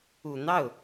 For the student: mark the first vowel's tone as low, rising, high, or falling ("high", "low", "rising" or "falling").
low